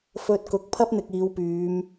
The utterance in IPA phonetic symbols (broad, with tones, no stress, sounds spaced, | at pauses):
f ɵ˧ t̚ k ʊ˨˥ k̚ pʰ ɐ˥ p̚ n̪ ɪ˨ k̚ iː˨˧ w p yː˨˧ m